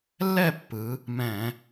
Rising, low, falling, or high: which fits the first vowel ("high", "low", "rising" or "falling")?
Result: falling